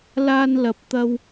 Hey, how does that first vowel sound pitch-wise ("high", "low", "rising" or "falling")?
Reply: high